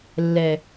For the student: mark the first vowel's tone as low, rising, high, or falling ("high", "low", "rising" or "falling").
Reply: low